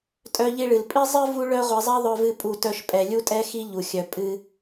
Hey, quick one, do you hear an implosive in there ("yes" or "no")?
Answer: no